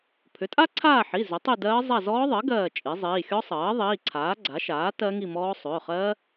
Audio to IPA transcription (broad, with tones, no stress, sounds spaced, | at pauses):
pʰ ʏ˩˥ tʼ a˦˥ ǀʰ aː˦˨ ħ i˩˧˩ z ʏ˩˥ tˤ i˦˨ d ɜː˦˥ zˤ a˦˨ z ɔː˦˥ ðˤ ɜ˩˥ ɡ ɜː˦˨ t͡ʃʼ i˩˥ zˤ iː˩˧˩ xʲ ɔ˦˥ sˤ ɜː˩˥ ðˤ iː˩˧˩ ǀʰ aː˩˥ ɡ͡ǀ a˩˥ ʃ aː˩˥ t ɜ˦˥ ŋ i˦˨ m ɔː˦˥ sˤ ʏː˩˧˩ χ ɜ˦˥